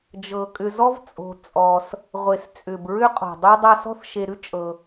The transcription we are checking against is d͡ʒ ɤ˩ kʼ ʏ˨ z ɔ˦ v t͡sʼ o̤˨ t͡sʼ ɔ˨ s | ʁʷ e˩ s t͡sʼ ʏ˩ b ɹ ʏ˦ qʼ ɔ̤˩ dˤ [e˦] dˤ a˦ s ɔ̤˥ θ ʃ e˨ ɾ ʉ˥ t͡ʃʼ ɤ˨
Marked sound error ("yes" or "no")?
no